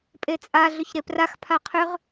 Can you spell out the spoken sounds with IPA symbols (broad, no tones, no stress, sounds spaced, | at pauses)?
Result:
pʼ e t͡sʼ a ɮ ʏ ç ɾ e p r a x pʰ a qʰ ʏ ʁ